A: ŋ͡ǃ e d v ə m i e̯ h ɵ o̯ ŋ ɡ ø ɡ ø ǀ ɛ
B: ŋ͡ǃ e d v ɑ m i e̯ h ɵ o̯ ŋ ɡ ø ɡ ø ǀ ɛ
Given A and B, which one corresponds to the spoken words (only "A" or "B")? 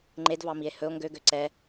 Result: B